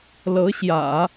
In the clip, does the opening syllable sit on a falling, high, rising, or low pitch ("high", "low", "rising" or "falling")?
rising